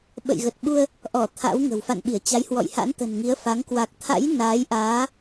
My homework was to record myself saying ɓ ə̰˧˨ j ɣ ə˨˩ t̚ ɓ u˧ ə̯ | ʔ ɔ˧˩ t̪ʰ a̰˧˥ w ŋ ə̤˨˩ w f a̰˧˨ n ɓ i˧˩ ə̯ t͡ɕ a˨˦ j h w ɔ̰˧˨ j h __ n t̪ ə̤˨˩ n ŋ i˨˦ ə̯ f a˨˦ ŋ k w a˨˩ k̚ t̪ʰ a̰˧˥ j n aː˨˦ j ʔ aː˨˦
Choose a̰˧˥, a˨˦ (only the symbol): a̰˧˥